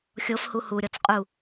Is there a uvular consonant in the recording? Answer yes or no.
yes